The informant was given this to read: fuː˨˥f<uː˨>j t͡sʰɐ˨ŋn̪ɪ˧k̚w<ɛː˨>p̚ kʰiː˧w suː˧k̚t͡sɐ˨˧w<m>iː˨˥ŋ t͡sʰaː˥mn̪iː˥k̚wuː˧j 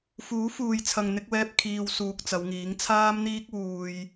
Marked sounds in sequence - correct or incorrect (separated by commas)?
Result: correct, incorrect, incorrect